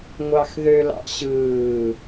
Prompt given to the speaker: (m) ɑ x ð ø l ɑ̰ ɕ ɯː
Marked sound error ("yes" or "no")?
yes